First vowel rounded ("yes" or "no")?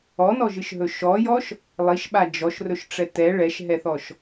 yes